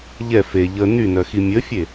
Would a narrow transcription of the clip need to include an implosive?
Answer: no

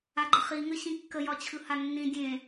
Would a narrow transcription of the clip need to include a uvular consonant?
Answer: yes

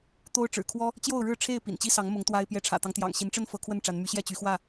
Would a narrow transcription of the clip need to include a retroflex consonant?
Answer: yes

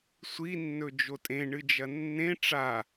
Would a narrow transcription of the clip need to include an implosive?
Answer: no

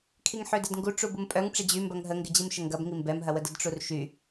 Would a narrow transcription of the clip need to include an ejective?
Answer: yes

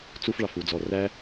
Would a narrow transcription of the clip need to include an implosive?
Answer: no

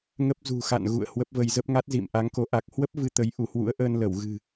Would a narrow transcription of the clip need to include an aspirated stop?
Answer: no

